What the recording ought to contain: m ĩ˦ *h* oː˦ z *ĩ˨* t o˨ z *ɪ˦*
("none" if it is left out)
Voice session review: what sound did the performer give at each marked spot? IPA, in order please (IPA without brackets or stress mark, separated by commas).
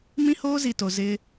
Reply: h, i˨, ɪ˦